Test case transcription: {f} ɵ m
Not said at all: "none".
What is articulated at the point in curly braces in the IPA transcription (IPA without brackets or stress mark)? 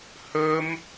h